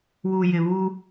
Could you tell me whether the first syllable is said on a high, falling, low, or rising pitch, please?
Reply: low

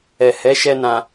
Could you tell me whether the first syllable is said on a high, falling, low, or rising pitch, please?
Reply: low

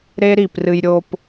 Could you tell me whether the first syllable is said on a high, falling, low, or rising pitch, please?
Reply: high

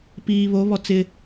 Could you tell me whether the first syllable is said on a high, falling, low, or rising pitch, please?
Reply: low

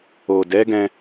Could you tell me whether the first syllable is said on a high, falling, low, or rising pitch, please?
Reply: low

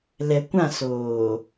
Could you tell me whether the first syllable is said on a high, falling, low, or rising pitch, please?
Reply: low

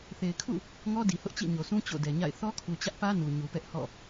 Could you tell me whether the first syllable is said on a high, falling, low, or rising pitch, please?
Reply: low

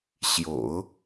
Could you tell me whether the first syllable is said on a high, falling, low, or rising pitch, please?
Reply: low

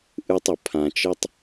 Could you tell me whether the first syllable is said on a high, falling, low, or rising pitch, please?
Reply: high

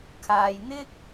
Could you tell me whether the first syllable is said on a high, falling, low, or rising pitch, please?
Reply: low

